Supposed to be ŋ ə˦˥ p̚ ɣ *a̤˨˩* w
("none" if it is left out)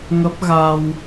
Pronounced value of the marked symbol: a˧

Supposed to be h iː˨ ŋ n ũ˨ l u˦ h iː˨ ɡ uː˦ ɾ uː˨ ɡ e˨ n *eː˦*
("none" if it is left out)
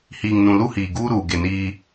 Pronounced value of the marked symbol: iː˦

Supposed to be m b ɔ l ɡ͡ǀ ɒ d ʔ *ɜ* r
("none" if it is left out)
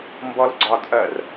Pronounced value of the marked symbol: ɜ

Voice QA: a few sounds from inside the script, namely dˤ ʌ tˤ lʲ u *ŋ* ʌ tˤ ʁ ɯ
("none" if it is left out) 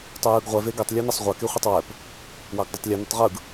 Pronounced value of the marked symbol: n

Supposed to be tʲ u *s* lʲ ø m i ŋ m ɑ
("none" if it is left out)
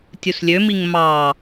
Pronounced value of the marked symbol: s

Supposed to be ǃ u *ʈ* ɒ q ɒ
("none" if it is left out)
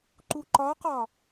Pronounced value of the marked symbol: ǃ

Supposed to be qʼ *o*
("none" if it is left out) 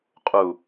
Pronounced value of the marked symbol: u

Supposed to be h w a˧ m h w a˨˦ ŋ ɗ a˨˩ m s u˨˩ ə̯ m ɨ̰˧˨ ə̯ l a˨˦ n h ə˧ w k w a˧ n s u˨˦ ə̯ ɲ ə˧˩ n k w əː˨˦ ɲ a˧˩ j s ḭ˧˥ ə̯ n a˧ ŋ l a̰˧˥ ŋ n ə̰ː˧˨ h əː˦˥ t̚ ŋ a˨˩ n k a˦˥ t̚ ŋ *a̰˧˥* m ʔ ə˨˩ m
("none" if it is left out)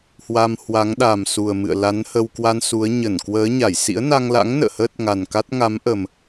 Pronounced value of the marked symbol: a˨˦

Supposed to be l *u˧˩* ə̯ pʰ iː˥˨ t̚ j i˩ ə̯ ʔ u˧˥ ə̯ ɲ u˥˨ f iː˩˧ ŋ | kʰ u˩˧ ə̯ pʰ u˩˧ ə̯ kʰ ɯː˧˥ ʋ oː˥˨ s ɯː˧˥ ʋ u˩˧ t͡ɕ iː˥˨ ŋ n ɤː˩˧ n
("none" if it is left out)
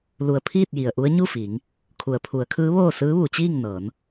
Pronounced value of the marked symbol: u˧˩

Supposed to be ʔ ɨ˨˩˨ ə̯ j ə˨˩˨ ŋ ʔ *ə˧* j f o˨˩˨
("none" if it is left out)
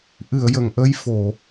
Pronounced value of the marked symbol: ə˧˥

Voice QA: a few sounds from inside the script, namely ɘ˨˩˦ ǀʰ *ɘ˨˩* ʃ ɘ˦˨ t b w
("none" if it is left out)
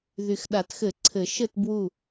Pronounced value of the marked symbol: ɘ˨˩˦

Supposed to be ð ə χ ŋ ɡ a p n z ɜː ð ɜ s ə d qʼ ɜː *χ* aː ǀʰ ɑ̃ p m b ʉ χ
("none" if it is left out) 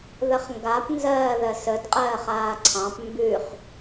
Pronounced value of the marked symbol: χ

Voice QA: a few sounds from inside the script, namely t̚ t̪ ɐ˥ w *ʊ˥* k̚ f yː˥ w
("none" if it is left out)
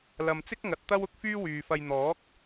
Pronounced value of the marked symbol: ʊ˥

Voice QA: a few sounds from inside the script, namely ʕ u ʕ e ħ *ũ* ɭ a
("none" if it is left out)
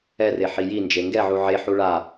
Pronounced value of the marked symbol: u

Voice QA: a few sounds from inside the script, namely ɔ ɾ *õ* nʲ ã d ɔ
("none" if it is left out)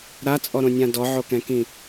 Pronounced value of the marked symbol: õ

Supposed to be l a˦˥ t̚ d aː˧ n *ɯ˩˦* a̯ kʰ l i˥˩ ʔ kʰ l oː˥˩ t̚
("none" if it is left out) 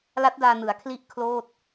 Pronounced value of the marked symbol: ɯ˩˦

